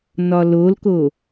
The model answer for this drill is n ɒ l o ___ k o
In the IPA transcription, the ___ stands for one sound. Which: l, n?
l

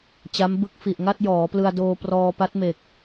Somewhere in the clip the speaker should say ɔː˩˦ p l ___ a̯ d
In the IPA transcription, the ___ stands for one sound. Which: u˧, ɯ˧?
ɯ˧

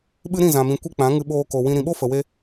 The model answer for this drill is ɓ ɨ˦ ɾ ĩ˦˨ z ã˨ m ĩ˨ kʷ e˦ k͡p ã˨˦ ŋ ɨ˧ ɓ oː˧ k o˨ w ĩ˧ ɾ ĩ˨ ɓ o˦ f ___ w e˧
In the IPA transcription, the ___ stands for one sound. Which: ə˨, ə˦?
ə˨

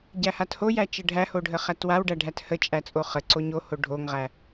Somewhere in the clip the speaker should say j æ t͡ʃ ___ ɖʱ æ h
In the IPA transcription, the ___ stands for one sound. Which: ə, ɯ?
ə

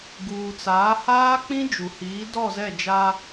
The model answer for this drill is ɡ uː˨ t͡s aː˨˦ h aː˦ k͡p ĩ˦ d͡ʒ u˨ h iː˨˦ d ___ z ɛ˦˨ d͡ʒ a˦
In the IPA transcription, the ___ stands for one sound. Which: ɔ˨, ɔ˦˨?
ɔ˦˨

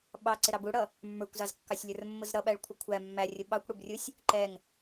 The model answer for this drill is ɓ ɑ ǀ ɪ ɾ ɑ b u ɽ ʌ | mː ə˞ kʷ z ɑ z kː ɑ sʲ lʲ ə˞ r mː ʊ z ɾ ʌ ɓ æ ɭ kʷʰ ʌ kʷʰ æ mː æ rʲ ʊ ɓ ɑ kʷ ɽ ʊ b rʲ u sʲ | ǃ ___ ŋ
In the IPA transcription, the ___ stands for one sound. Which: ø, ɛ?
ɛ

